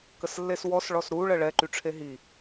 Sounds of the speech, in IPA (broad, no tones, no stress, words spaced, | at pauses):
kəslːeswɔs ɭɔsɾuɭə ɭɛǃyʈ͡ʂʰe ɦi